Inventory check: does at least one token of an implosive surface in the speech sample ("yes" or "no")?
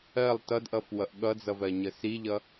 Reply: yes